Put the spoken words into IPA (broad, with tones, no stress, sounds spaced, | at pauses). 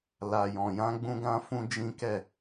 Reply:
l a˨ j ɔ̃˨ j ã˧ ɡ͡b ũ˧ ɡ ã˧ f ũ˦ d͡ʒ ĩ˦ k ɛ˦˨